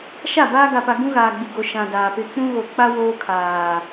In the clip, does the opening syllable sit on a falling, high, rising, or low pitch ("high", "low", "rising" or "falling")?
falling